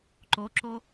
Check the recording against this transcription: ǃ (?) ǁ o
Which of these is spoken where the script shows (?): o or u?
o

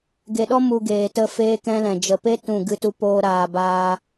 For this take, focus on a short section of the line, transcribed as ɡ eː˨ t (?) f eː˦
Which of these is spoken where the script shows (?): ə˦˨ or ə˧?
ə˦˨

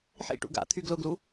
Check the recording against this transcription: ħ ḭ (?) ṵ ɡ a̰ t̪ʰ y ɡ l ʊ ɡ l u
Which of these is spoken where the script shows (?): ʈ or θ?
ʈ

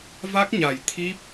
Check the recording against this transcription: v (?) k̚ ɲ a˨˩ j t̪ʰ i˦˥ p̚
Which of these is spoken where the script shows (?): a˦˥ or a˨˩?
a˦˥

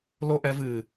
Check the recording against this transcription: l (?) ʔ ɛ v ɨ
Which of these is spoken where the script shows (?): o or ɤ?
o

